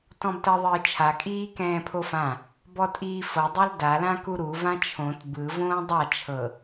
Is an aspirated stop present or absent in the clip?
present